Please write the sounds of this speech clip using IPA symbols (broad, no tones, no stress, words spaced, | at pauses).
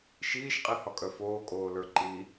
ʃiːʃqʼihɒkʼœ foːkʼoːlə˞ ǃi